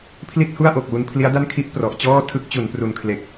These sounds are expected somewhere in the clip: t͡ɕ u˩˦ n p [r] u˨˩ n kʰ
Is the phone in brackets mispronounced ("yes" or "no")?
no